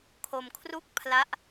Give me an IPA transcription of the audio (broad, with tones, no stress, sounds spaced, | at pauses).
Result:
kʰ o˧ m kʰ r u˥˩ k̚ pʰ l a˦˥ ʔ